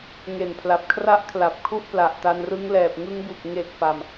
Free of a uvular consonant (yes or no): yes